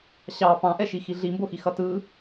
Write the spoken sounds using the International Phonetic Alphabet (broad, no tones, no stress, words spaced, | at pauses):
ɕɑ pɑ̃ʔɛʃi xiɮimboxi xʌtɯ